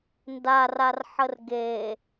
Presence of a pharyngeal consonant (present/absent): present